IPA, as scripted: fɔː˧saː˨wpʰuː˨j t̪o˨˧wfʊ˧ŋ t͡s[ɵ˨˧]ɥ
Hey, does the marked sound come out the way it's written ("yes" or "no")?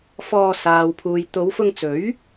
no